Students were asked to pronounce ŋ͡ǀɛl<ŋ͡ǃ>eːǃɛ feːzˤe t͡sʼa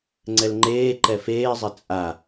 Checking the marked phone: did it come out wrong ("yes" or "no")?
no